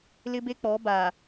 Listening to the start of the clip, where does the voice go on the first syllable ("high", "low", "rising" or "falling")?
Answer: high